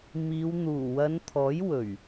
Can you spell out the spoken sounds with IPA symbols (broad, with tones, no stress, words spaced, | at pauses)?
miː˨˧wn̪uː˨˩ wɐ˨˧nt̪ʰɔː˨˥j wɵ˨˩ɥ